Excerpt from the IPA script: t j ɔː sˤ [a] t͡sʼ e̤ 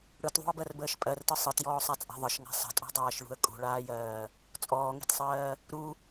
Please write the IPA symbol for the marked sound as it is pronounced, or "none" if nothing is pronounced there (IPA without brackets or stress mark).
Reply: a